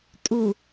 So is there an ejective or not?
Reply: yes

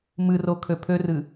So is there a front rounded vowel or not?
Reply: yes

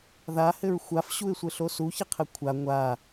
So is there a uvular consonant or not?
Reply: yes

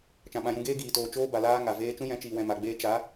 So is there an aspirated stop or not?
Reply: no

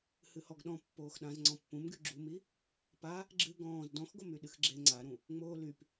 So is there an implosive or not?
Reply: yes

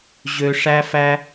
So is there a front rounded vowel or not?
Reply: yes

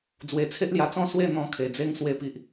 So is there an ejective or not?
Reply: no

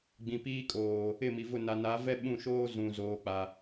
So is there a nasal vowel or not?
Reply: yes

